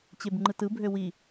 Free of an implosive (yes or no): yes